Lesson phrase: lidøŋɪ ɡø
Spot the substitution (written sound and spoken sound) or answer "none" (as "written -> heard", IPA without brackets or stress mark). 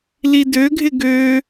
ŋ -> ɡʱ